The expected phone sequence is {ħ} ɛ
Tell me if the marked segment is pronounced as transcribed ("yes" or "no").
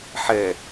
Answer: yes